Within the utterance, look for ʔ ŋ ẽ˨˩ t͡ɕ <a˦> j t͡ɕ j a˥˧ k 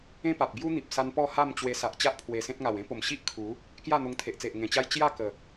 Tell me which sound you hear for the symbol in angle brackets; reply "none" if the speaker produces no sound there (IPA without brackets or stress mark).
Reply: a˦